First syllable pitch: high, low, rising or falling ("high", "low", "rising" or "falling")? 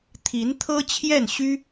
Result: rising